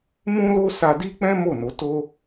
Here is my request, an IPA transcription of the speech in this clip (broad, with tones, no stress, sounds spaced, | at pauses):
m ũ˦ l o˦ s a˧ d i˦ k͡p ɛ̃˦ m o˦˨ n o˨˦ t o˦